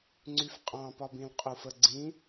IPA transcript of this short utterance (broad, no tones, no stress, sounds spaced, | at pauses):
ŋ͡ǀ y f qʼ ɑ̃ p ɒ b ĩ l qʼ u f ə ɡ͡ǀ ĩ